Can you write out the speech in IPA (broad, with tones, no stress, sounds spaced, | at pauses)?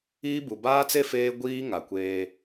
iː˦ b u˨ b aː˦ t͡s e˦ f eː˦ ɡʷ iː˦ ŋ a˨ kʷ eː˦